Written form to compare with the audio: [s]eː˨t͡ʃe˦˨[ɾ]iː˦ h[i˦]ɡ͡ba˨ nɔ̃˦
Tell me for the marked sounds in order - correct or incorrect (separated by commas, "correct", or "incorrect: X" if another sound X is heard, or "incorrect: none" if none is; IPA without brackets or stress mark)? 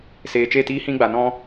correct, incorrect: t, incorrect: ĩ˦